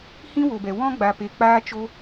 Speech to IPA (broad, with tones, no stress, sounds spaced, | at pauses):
h ĩ˦ w o˨ b ɛ˨ w ɔ̃˦ ɡ͡b a˨ p e˨ k͡p aː˦ t͡ʃ o˦